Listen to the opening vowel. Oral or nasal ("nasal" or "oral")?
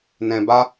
nasal